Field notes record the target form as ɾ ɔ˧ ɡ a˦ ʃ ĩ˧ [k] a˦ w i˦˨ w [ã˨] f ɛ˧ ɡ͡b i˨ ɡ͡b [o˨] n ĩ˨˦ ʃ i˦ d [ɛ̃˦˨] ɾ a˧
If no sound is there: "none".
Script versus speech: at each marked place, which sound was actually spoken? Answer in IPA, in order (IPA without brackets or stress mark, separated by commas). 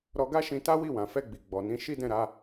t, ã˨, ɔ˨, ɛ̃˦˨